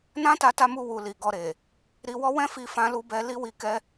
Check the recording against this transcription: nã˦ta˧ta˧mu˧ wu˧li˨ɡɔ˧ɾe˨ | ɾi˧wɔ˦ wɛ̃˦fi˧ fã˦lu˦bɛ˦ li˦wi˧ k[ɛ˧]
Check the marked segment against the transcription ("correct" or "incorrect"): incorrect